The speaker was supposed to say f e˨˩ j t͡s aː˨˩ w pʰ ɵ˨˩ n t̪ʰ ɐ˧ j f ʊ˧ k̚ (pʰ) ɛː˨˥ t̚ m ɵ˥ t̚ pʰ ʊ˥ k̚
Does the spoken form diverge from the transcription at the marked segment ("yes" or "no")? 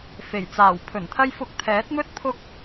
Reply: yes